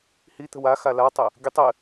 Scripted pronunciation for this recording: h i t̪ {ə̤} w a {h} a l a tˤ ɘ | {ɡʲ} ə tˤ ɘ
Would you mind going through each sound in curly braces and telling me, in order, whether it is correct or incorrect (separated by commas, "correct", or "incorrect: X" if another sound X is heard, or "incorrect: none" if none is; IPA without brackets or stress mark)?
correct, incorrect: x, correct